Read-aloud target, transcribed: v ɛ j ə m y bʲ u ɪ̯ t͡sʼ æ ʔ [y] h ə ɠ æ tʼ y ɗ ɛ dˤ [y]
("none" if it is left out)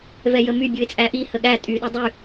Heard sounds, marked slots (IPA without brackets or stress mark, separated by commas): i, y